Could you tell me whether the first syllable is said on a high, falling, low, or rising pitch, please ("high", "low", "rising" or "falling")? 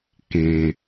low